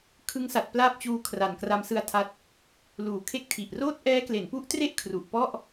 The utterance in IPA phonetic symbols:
kʰ ɯ˦˥ ŋ s a˨˩ t̚ p l aː˥˩ p̚ t͡ɕ uː˧ kʰ r a˨˩ n k r a˦˥ m s ɯ˦˥ a̯ tʰ a˦˥ t̚ | l uː˩˦ kʰ e˥˩ k̚ tʰ i˨˩ ʔ r oː˥˩ t̚ ʔ ɛː˦˥ k l e˩˦ n p u˦˥ ʔ t r e˥˩ ʔ kʰ r u˨˩ ʔ p ɔ˥˩ ʔ

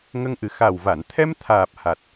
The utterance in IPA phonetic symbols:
ŋ ə˧ ŋ ʔ ɨ˨˩ x a˨˩ w v a˨˩˨ n t̪ʰ ɛ˧ m t̪ʰ aː˨˩ p̚ h a˨˩ t̚

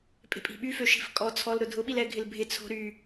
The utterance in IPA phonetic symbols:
pʼ e̤ pʼ i̤ ɓ y f ø ʃ i̤ f kʼ ɔ t͡sʰ ɔ l ɾ ʊ dʱ ʊ ɓ i l ɛ ɡʱ ɪ l bʱ ɪ t͡sʰ o̤ ɾ y

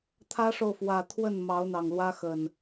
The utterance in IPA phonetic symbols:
t̪ʰ ä˦ ʂ o˨ ʊ̯ f w ä˨˩ t̪ʰ w ə˥˨ n m ɑ˨˦ ʊ̯ n̪ ɑ˨˩ ŋ l w ä˦ x ə˨˩ n

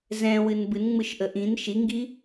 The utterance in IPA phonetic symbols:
z ɛ̃ w ɨ n b ɨ n ŋ͡m ɯ ʃ ʔ ə ʔ ĩ n ʃ i ŋ ɡ i

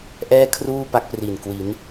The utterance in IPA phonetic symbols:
ʔ ɛː˥˩ kʰ r uː˥˩ p a˦˥ k̚ p r i˨˩ n k w i˩˦ n

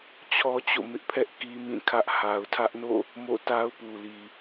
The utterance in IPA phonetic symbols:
t͡ɕʰ ɔ˦ t͡ɕ o̰˦˨ m ɪ˦ ʔ pʰ ɛ˦ ʔ k i˦ m ĩ˦˨ kʰ ä˦ ʔ h a˨ ʊ̯ tʰ ä˦ ʔ n o̰˦˨ | m o̰˦˨ t a˦ ʊ̯ p u˨ l i˨

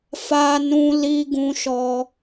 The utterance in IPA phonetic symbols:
f a˦ n ũ˦ l i˦ ɡ ũ˦ ʃ ɔ˦

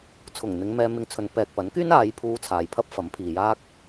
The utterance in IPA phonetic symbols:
t͡sʰ ʊ˨˩ ŋ n̪ ɪ˨˧ ŋ m ɛː˧ m ɪ˧ ŋ t͡sʰ ɵ˨˧ n p ɛː˨ k̚ p ɐ˨˥ n k yː˥ n aː˨˧ j pʰ uː˧ t͡sʰ aː˨ j pʰ ɐ˥ p̚ f ɐ˨˥ m pʰ iː˨ j aː˥ k̚

